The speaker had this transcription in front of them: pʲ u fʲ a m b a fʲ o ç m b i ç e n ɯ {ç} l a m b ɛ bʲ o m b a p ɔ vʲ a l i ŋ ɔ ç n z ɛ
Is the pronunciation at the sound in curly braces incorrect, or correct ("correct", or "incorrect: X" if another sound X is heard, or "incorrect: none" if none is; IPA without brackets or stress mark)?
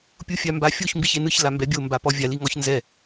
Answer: correct